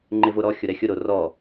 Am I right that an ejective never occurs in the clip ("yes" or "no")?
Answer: yes